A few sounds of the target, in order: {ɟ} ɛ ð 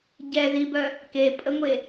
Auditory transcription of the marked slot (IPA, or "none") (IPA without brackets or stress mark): ɟ